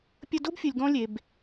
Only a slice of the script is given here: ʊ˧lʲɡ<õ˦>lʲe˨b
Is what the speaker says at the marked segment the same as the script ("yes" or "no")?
no